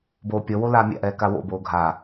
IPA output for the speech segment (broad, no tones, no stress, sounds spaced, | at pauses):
b oː pʲ ɔ w o l aː mʲ a̰ ʔ ɛː k a w o̰ b oː ɡʱ a